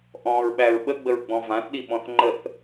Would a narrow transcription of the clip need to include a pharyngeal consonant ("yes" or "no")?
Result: no